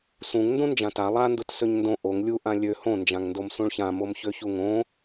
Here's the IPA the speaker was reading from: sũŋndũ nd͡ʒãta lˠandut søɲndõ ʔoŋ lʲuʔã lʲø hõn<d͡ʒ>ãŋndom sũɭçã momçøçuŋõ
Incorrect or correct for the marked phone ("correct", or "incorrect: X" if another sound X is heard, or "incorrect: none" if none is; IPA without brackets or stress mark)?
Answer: correct